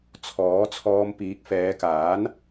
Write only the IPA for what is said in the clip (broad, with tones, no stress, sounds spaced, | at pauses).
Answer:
t͡sʰ ɔː˨˥ t͡sʰ ɔː˧ m p iː˨˥ k̚ f ɛː˨˧ k aː˨˥ n